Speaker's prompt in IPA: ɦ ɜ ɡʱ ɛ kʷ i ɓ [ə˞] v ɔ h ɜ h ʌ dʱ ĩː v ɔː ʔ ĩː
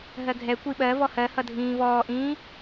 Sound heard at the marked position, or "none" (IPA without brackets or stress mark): ɜ